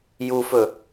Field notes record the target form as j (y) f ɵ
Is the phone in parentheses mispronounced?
yes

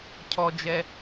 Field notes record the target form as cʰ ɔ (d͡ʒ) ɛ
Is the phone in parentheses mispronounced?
no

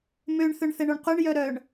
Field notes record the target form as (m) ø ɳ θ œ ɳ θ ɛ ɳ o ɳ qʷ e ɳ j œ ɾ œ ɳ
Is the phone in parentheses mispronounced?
no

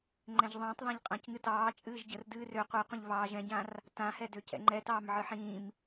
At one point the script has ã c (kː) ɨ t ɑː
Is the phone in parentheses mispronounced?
yes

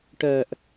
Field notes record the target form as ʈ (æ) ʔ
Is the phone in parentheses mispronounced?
yes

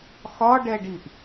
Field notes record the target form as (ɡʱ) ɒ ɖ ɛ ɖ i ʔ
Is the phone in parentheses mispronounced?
yes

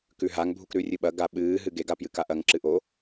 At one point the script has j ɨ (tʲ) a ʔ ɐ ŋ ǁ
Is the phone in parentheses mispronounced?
yes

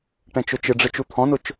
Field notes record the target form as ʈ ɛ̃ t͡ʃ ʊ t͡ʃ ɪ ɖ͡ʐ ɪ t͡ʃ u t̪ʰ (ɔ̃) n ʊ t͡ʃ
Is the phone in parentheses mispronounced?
no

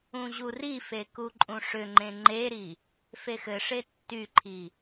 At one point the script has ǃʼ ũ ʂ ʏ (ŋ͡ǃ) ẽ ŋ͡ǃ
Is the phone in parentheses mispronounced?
no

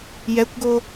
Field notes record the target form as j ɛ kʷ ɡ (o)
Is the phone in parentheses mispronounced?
no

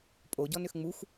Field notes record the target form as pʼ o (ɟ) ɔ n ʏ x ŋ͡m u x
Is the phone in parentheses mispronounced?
no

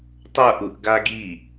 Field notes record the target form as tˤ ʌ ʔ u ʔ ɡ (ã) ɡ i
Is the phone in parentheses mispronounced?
yes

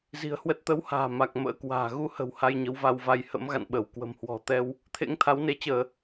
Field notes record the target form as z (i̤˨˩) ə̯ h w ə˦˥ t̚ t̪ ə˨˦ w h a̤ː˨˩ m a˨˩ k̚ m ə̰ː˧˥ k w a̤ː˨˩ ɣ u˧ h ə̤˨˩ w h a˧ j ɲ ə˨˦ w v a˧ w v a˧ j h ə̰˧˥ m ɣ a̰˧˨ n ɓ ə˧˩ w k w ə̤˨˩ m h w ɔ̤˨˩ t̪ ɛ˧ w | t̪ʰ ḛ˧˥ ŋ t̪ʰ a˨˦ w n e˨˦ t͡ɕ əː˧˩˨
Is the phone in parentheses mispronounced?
no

